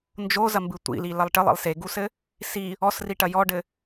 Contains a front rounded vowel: no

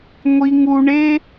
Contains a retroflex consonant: yes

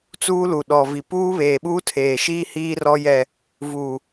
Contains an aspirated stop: yes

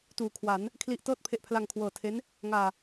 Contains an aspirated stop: yes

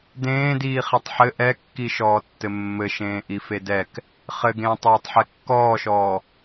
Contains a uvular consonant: yes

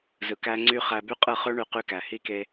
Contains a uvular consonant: yes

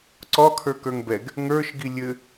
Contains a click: yes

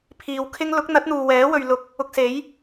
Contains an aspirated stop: yes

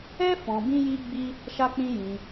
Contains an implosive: no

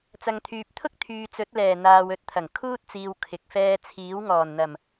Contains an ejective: no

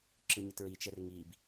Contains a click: yes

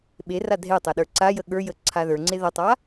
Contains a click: yes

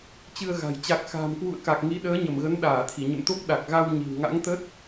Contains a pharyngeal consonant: no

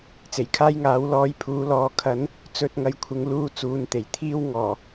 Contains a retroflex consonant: no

